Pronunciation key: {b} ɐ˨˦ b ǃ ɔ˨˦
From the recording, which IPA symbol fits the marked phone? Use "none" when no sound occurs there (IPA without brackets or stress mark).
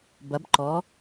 b